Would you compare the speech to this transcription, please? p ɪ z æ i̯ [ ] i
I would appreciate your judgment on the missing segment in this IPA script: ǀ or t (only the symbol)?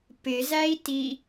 t